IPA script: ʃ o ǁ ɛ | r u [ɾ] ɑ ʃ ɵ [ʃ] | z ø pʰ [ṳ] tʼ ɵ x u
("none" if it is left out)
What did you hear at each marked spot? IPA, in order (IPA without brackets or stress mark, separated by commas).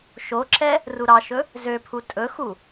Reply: ɾ, none, u